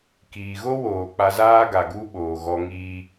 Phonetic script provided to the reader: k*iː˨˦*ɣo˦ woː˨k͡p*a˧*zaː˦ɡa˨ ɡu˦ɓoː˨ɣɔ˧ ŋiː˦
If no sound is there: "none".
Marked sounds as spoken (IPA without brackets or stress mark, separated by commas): iː˨, a˧